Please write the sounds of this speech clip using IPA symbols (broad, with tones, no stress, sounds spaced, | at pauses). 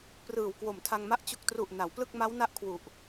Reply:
p r ɯː˨˩ w k w o˨˩ m tʰ a˧ ŋ m a˦˥ ʔ t͡ɕ u˨˩ k̚ t r u˨˩ ʔ n a˩˦ w p l ɯ˥˩ k̚ m a˦˥ w n a˥˩ ʔ kʰ w u˨˩ ʔ